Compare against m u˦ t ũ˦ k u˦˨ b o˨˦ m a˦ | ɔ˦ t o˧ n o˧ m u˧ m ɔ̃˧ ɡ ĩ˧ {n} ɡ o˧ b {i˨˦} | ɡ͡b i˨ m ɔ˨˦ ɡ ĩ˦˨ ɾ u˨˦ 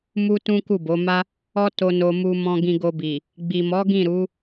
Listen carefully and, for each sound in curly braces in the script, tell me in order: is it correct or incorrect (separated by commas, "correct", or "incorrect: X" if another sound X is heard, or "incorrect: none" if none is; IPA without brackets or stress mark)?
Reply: incorrect: none, incorrect: i˨